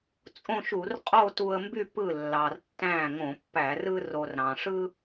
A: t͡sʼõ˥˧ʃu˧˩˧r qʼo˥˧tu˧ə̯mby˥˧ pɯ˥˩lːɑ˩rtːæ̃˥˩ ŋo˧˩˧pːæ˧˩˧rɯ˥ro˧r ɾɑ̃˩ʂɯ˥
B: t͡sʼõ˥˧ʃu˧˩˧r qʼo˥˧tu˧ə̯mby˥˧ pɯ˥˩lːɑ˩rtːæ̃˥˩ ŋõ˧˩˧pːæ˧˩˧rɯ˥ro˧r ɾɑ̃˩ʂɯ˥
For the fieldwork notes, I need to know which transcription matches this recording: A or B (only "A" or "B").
B